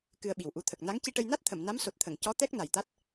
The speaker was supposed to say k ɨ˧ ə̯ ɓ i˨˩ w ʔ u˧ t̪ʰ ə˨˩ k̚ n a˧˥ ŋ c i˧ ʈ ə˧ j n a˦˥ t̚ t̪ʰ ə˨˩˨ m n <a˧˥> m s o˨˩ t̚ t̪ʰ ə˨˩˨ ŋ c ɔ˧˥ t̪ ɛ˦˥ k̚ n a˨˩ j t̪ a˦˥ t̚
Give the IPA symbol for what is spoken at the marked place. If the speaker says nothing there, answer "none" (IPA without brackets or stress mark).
a˧˥